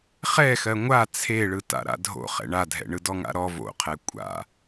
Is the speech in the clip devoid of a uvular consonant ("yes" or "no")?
no